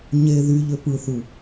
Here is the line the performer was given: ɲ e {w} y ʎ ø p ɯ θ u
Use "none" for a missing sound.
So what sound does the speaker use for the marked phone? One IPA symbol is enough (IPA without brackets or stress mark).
ð